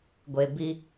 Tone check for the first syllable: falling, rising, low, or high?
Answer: low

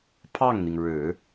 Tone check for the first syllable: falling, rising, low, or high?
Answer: falling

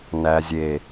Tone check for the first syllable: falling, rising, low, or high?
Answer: low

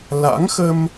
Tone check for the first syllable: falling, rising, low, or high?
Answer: rising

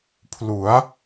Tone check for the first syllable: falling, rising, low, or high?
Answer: rising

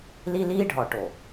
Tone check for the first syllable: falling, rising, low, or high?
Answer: high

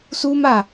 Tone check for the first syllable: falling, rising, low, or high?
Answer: high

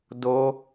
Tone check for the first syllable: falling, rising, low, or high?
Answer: high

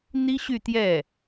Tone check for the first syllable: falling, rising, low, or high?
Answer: high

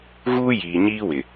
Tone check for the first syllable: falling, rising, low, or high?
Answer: high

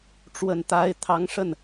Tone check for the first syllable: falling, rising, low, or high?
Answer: low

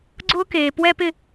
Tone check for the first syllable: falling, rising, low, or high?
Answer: high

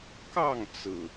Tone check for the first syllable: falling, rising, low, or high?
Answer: falling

